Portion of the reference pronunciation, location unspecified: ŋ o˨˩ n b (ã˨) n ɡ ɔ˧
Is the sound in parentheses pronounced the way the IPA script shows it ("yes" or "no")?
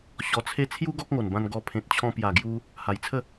no